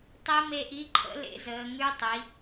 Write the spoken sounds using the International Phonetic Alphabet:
tˤi˧˥me˧ʔi˧˥ǃʰə̰˧˥ lḛ˧˥zəː˩˧ŋʉ˧˥tˤi˩˧

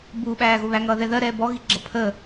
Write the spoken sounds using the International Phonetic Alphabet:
bu ɓæːɣʊβæ ŋʌːðɛðɜ ɾɛːbɔ ɣiɡ͡ǁʌpʰəː

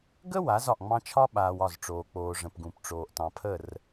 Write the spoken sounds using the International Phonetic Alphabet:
ɡə˦ wa˨˦zɒ˨ʔŋ͡mɑ̃˦ t͡ʃʰɒ˦ɓaː˨w ɒ˦˨zʈ͡ʂoː˨k͡poː˨ʐə̃˨p ɡũ˨pʈ͡ʂoː˨ʔ tɑ̃˨pʰə˦˨r

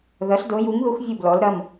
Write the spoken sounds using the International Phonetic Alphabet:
ðɐ˩˥ɬdo˩˥ju˩˥ŋðu˩˥x vʲu˥˩blɔ˩˥lɾɐ˩˧˩m

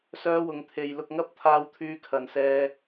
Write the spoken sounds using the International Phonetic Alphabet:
sœː˥wʊ˧ŋt̪ʰe˧j lʊ˧k̚ŋɐ˥p̚ t̪ʰaː˥wt̪ʰyː˥kʰɐ˧nsɛː˥

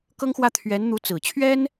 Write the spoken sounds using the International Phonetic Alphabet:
kɤ˥ŋxwä˥˩t̪ʰɥɛ˧˥nn̪u˧˥ t͡sɹ̩˨˩ t͡ɕʰɥɛ˥n

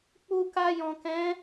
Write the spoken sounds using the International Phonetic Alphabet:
k͡pu˧ka˧jɔ̃˨kɛ̃˨˦

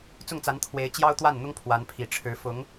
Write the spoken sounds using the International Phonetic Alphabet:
t͡sʊ˥˩ŋt͡sa˧˥n t̪ʰwe˧˥ɪ̯t͡ɕjɑ˥ʊ̯t̪wa˥˩nn̪ʊ˥ŋ pʰwa˧˥npʰi˨˩ ʈ͡ʂʰɻ̩˧˥ fʊ˧˥ŋ

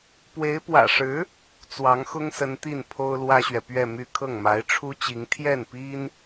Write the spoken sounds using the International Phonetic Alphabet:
pwe˧˥ɪ̯ pwä̰˨˩ʂɻ̩˧˥ | t͡swɑ˧˥ŋxʊ˥ŋsə˧˥n t̪i˥˩npʰo˥ʊ̯ lwä˥ɕɥɛ˨ pɥɛ˥˧my˥˧ kʰɤ˥˩ŋma˧˥ɪ̯ʈ͡ʂʰu˥t͡ɕi˧˥ŋ t̪ʰjɛ˥˩npi˥n

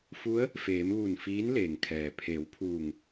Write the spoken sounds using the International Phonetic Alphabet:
fu˧˥ə̯ | feː˩˧mʋu˧˩n fiː˧˥nleː˩ŋkʰɛː˩ pʰe˩˧wpʰuː˧˩ŋ

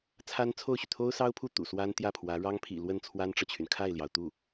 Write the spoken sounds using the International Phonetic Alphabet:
t͡sʰa˥nt͡sʰo˥˩ʊ̯ɕy˩ t̪ʰo˥ʊ̯sɑ˥ʊ̯pʰu˥˩ t̪ṵ˨˩swa˥nt̪jä˥˩pʰwä˧˥ ɻɑ˥ŋpʰḭ˨˩ lwə˥˩nt͡sʰwa˥nʈ͡ʂɤ˨t͡ɕʰy˩n kʰa˥˩ɪ̯ljɑ˩ʊ̯t̪u˥˩

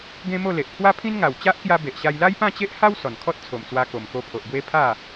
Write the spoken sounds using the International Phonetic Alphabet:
ɡẽ˦mo˥˧le˨ʔ pʰwa˦pʰĩ˦nŋa˨˩w t͡ɕa˦ʔkja˧ be˨ʔɕa˧j la˦jpã˥˧t͡ɕe˦ʔha˦w sɔ˨˩nkʰɔ˦t̚t͡sʰo˨˩mt͡swa˧ ko˨˩mko˧pʰo˨ʔbwe˦ pʰa˥˧

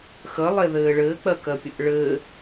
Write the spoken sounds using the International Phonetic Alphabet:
xəlˠeðɘː ɭɘːk͡pɜkɜpʲəʔ ɭɘ

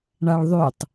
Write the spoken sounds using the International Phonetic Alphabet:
ɳaɭðˤʉtˤ

